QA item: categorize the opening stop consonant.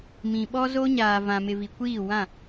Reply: implosive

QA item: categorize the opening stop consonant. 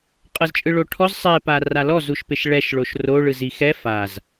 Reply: ejective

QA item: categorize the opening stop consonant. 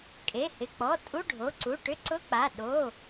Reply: ejective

